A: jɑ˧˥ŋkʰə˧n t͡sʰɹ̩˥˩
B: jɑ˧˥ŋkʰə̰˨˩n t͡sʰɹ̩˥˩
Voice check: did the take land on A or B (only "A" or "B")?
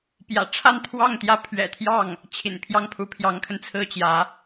A